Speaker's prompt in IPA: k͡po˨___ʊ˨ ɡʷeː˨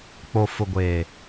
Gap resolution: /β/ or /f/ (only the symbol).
f